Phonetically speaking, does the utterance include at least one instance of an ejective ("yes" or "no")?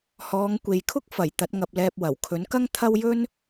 no